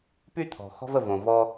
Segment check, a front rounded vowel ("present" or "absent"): present